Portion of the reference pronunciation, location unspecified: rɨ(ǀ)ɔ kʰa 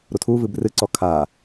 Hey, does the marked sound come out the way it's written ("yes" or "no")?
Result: yes